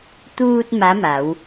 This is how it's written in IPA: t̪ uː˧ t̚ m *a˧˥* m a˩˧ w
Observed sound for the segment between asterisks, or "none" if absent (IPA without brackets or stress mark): a˧˥